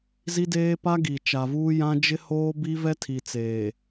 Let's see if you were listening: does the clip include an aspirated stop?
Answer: yes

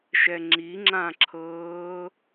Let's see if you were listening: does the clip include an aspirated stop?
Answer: yes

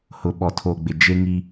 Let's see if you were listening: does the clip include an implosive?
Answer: yes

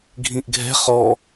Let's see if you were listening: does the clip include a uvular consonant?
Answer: yes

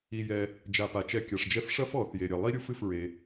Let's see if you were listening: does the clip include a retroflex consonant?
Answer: yes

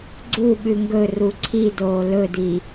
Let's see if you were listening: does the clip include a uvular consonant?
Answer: no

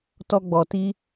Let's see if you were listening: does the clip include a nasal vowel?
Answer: no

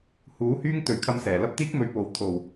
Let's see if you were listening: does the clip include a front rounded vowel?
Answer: yes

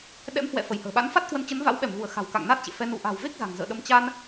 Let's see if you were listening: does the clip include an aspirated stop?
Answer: no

